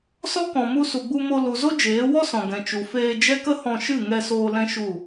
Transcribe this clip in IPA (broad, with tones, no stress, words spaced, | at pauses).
sɔ˦kɔ̃˨mu˧ su˨ɡ͡bu˧mo˧ lu˨ zo˦d͡ʒeː˨˦wɔ˦sɔ̃˨ ɡɛ̃˨t͡ʃu˨feː˧d͡ʒɛ˦ kə˦hɔ̃˧ʃɨ˦˨ ŋɛ˧soː˧ lɛ̃˦ʃu˦˨